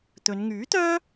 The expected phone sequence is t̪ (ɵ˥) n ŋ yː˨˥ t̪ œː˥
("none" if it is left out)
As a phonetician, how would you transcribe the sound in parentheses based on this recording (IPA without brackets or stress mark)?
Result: ɵ˨˧